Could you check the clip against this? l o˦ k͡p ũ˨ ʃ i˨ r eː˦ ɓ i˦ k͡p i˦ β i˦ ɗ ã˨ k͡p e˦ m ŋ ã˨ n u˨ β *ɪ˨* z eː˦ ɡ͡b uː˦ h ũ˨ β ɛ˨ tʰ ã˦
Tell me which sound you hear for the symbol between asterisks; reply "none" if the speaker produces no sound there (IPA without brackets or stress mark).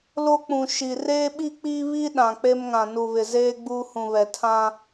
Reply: ɪ˨